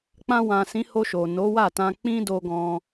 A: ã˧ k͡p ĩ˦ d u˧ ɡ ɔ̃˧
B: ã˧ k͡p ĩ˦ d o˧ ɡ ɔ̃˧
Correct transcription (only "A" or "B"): B